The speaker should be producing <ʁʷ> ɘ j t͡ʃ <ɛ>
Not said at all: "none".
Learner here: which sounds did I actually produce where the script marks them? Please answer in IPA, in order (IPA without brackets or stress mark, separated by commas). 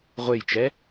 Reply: ʁʷ, ɛ